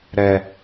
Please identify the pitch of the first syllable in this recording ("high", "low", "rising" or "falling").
high